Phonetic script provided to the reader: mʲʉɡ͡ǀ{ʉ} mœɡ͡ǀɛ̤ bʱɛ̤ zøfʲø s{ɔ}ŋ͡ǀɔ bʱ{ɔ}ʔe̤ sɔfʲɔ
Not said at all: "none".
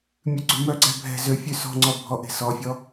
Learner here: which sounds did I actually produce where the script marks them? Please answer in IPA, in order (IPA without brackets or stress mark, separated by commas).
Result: ʉ, ɔ̤, ɔ